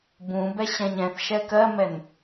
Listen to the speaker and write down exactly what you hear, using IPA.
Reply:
b ũ b ɛ ɕ ɛ̃ ɲ ɛ̃ θ ʃ ɛ k ɜ m ɛ n

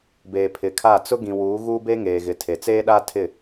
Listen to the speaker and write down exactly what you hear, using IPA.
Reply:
b eː˨ pʰ ɪ˨˦ kʰ a˦˨ t͡s ʊ˦ ɡ ĩ˨ w uː˨˦ ɣ uː˦ b e˦ ŋ eː˨ ɣ ɪ˨ tʰ e˨ t͡s eː˦ ɗ a˦ tʰ ɪ˦˨

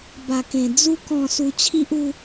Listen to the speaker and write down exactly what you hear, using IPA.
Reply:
b a˨˩ k ẽ˨˩ d͡z u˧ k ɔ̃˨˩ s u˧ t͡ɕʰ i˦ ʔ u˦

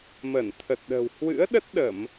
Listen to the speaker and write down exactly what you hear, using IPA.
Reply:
m ə˧˩ n t̪ʰ ə˨˩ t̚ ɗ ə̤˨˩ w h w ɨ̰˧˥ ə̯ ɗ ə˦˥ t̚ ɗ ə˧˩˨ m

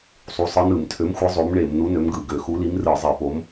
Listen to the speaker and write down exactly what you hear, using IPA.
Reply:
sˤ u˨˥ sˤ ɯ˨˥ n ɯ˧˩˧ m tʰ ø˨˥ m xʷ ɯ˨˥ zˤ o˨˥ m ɳ e˧˩˧ m n u˨˥ n ø˨˥ m ɡ ɯ˧˩˧ ɡ ø˧˩˧ x u˨˥ l i˨˥ m r ɯ˧˩˧ zˤ e˧˩˧ p o˨˥ m

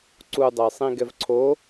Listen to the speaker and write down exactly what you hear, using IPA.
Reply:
ǀ u dˤ ɛ j sˤ ĩ ɡ ɛ v ǀʰ o

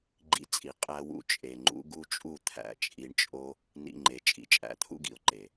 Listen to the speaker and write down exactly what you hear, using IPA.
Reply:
ɡ͡ǃ ḭ˨˦ t͡sʼ i˨ qʼ æ˧ w ṵ˧ t͡ʃʼ e˨ ŋ͡ǃ ṵ˨˦ ɡ u˦ t͡ʃʼ u˦˨ t̪ʰ æ̰˨˦ t͡ʃʼ i˧ ɳ t͡ʃʼ o˦ | n ḭ˧ ŋ͡ǃ e˨ t͡ʃʼ ḭ˨ t͡ʃʼ æ̰˨ t̪ʰ ṵ˦ ɡ ḭ˨ ʊ̯ ǃ e˨

